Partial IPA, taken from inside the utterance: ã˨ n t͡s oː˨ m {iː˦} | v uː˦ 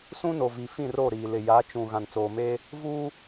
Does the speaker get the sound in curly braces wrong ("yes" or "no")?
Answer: yes